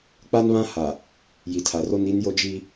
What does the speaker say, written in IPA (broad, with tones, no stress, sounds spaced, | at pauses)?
k͡p a˦ n β ã˦ h a˨ | j i˨ tʰ a˨ r o˦ n i˦ n j o˦ d͡ʒ i˦